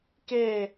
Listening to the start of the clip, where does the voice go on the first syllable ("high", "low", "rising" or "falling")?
falling